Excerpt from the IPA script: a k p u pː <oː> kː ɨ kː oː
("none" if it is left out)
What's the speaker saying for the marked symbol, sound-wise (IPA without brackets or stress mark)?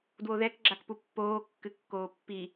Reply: oː